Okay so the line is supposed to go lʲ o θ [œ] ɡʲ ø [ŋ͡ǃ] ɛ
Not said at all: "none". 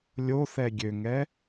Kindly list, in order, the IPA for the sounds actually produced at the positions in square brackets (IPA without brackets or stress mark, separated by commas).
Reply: ɛ, ŋ